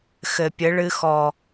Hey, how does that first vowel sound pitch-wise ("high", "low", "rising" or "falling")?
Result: low